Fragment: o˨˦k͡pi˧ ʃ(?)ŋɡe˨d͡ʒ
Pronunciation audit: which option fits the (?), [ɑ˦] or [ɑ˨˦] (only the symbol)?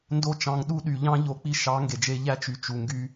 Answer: ɑ˨˦